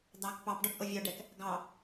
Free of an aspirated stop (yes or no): yes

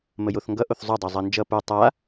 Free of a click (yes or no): yes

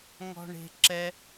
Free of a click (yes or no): no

